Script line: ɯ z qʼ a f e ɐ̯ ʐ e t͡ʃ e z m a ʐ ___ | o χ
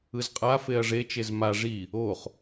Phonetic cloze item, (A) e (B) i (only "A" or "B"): B